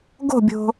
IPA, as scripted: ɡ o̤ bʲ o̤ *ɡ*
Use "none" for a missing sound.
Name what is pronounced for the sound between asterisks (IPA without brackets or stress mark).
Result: none